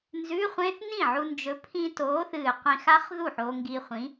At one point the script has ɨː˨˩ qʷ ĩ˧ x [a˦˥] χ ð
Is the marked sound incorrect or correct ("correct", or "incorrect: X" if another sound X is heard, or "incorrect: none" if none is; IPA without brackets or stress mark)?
correct